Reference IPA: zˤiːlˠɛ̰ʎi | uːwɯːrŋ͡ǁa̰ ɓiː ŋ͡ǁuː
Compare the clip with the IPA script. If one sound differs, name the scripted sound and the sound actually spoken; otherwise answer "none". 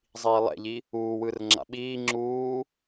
none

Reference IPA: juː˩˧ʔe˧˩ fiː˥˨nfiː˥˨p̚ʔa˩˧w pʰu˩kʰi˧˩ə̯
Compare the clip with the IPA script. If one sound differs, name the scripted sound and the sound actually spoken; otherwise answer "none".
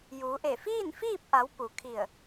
pʰ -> p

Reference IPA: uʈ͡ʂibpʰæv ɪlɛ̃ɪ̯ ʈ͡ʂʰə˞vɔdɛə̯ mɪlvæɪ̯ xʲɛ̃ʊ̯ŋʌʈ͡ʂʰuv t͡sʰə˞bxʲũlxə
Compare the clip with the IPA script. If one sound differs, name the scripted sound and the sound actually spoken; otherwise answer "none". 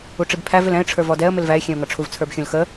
none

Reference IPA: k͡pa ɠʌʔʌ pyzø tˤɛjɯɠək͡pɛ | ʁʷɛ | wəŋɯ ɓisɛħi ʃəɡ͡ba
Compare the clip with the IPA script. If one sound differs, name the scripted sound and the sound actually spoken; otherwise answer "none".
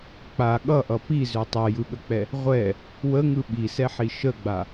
y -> i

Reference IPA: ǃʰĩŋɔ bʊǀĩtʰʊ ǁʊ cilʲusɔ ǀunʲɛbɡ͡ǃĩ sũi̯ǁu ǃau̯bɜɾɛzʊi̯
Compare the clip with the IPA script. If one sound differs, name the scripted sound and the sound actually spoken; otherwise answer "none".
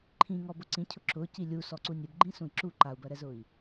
tʰ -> cʰ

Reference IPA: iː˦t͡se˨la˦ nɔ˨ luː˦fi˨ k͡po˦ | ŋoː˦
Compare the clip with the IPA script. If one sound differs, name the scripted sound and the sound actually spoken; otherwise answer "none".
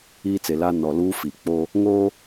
none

